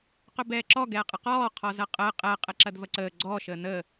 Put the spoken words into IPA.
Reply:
q ɵ b ɛː ǁ ɔ ɡ ɛː qʼ ə q ɔː qʰ ɔ z ɐ qʼ əː qʼ ɛ qʼ ɛ ǁ ɐ d v ɐ ǀ əː ɡ͡ǀ ɔ ʃ əː n ə

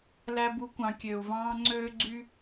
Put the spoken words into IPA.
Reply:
l æ˧ b u˧ kʷ ɑ̃˨ kʲ ø˨ u̯ v ɑ̃ː˧ ŋ͡ǀ øː˦ ɡ͡ǀ y˦

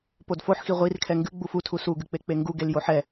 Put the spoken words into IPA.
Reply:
p o d f o ħ x i ʁʷ i r kʰ ɛ ŋ ɡ ɨ ɡ͡b u f u tʰ u s u ɡ ɨ k͡p e k͡p e ŋ ɡ u ɡ e l j o ħ ɛ

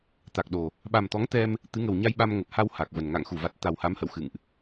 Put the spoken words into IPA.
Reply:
t̪ a˨˩ k̚ ɗ o˨˩ | ɓ a˨˩ m t̪ ɔ˨˦ ŋ t̪ ɛ˧ m | t̪ ɨ˨˦ ŋ ə˨˩ w ɲ a˧ j ɓ a˧ m ŋ ə˨˩ p̚ h a˧ w h a˨˩ k̚ v ə˨˩ n ŋ a̰˧˨ ŋ x u˧˩ v a˨˩ t̚ t̪ a˨˩ w h a˨˦ m h ə̰˧˨ w x ɨ̰˧˨ ŋ ʔ

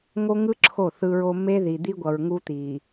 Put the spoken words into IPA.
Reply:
ŋ o˦ ŋ ɯ˦ ǁʰ o˦˨ θ ɯ˦ ɹ o˦ m e˦ ð i˨ d̪ i˦ ɡʷ ʌ˨ ɹ ŋ u˦ t̪ i˨

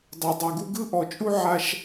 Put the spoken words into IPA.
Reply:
dˤ ɤ˨ dˤ o˨ ɡ u˦ ɡ ɯ˦ ʔ ɔ˨ t͡ʃʼ u˦ ʕ a˦ ʃ

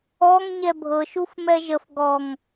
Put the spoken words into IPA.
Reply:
ɔ ŋ ɲ ɛ bʱ ɤ ʃ u f m ɛ ʒ ə f ɡ ɔ ŋ

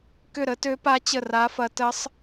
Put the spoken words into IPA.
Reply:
k ʏ˥˨ ɾ ə˦˥ t ø˦˥ p a˦˥ t͡ɕ ə˥˨ r a˦˥ f ɐ˦˥ t ə˦˥ sˤ

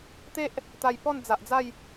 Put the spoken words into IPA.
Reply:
t̪ e˦ ʔ | t̪ a˨˩ j p ɔ˥˧ n d͡z a˨ ʔ d͡z a˥˧ j

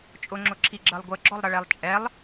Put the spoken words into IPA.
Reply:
t͡ʃʼ ʊ ŋ͡ǁ ʊ ǁʰ i ɡ͡ǁ ɜ lˠ ɡʷ ə ɡ͡ǁ ɔ lˠ ɾ ʌ ɭ ɛ lˠ t͡ʃʼ ɛ lˠ

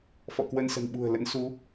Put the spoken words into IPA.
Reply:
f ɔ̰˧˨ k w ə˧ n s ə̤˨˩ n ɓ ṳ˨˩ ə̯ l ə̰˧˥ n s u˨˦

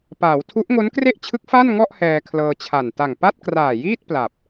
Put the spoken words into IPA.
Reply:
p aː˩˦ w tʰ u˦˥ ʔ ŋ o˦˥ n k r e˥˩ ʔ t͡ɕʰ ɯ˦˥ k̚ f a˥˩ n ŋ ɔ˥˩ ʔ h ɛː˧ kʰ l ɤː˧ t͡ɕʰ a˨˩ n t a˨˩ ŋ p a˥˩ t̚ k r aː˨˩ j iː˥˩ t̚ p l a˨˩ p̚

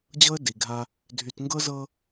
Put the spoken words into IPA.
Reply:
d͡ʑ ɤ˦ ə̯ d i˨ ɡʱ a˦ | dʱ y˨ t ŋ ɡ ɤ˦ z ɤ˦

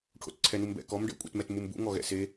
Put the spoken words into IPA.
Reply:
ʈʰ o̰ t ǀʰ ɛ n u m b ɛ̰ k ɔ m ɖ ɛ̰ kʷʼ ɛ̰ t m ɛ t m u m b ṵ ŋ ɔ ɣ ɛ̰ s e

